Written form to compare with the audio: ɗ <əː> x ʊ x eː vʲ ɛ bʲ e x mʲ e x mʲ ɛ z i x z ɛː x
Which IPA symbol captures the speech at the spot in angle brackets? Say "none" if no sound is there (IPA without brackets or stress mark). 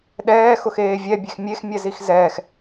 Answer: ɛː